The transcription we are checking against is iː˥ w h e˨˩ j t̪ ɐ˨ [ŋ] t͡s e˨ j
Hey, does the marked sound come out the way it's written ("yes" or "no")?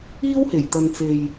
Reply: no